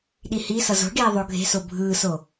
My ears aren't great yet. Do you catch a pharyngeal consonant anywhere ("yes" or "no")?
no